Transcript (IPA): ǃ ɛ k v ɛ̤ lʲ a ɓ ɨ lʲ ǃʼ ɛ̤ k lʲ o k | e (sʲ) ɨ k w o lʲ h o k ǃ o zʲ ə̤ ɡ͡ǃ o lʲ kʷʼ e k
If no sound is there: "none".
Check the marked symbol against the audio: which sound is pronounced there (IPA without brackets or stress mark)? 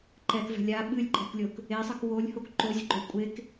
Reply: sˤ